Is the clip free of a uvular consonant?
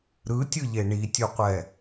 no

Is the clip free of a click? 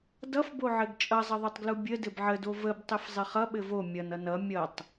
yes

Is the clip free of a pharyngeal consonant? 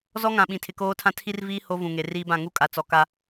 yes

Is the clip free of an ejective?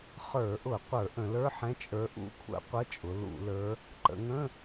no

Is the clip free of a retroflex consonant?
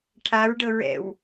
no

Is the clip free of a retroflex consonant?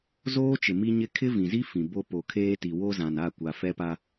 yes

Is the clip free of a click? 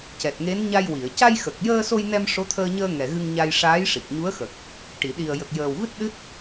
yes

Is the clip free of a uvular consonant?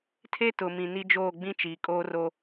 yes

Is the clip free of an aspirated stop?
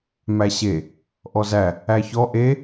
yes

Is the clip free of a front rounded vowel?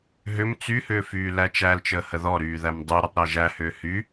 no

